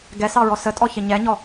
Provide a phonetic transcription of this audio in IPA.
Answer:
ɡɛsɑɹɔ sətʼɔçɪ ɲɛɲɔ

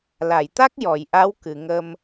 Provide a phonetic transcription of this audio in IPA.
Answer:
la˨˩˨jt̪a˦˥k̚ jɔ˨˩˨jʔa˧˥w kɨ˨˩˨ŋə˧m

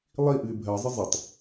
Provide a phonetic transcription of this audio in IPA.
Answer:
lˠiʔɨɪ̯ bʱɜzˤɪ zˤɪtˤ

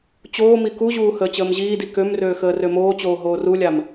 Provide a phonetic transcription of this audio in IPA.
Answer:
t͡ɕoːmi kuʑuː həːt͡ɕəːmʑiːdi kømrøː xəːrømoːt͡ɕoː ɦoːrulʲam

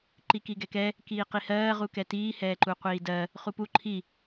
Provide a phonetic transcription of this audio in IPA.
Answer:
ǃikiɡɛkɛ | kiːqihɜː ʁukɛtiː hɛːǃuqʷiːdɜ | χupu ǃʰi

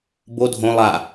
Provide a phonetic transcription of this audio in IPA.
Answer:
bo dʱõ lˠa

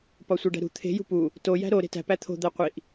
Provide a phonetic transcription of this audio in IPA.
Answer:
pɒsʷeɖæ̤ɾṳ t̪ʰe̤ jṳpu | to jæ̤ɾo ɾe̤tæ̤ pæt̪ʰo̤ d̪æqʷiʔ

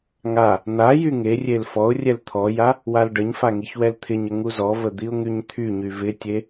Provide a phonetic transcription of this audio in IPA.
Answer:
ŋa | n̪a jyŋerʲel fɔʊ̯rʲɛl t̪ʰɔja | walɖəɲfa ŋiçwɛlt̪ʰɪɲə ŋuzɔvə d̪iʊ̯ŋyɲt̪ʰyɲy vɪtʲe

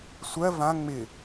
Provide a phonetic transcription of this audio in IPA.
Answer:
sʷɜ vã ŋ͡mɪ

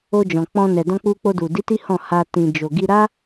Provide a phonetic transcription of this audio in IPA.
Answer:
o˧d͡ʒɔ̃˨k͡pɔ̃˧nɛ˨ dɔ̃˧k͡pu˧k͡po˧du˨ di˨˦ ti˦hɔ̃˦˨ha˧ tĩ˨d͡ʒo˨ɡi˧ ɾa˦

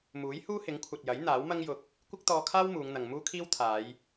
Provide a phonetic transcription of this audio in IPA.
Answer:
muː˨˥jhuː˥hɪ˨˥ŋkʷʰɐ˨t̚ jɐ˨˥j n̪aː˨˥wmɐ˥ŋjʊ˧k̚ | kʷɪ˥k̚t̪ɔː˧kʰaː˥w muː˨˧ŋn̪ɐ˨ŋ muː˥kʰiː˥w t̪ʰaː˨˧j

